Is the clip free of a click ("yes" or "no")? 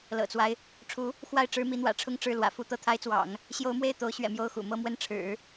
yes